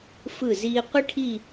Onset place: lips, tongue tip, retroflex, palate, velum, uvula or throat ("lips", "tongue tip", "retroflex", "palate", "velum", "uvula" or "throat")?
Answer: lips